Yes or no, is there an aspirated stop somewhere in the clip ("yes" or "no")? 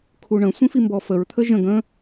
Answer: yes